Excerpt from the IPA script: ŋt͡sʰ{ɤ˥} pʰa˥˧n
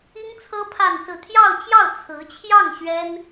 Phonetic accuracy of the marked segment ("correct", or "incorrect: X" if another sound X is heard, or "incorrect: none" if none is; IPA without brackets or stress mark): correct